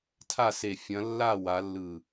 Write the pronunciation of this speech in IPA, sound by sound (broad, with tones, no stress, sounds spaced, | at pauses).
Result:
tʰ a˥˨ s e˧˩ fʲ ɐ̃˨˦ lː a˥˨ w a˨˦ lː ɯ˧˩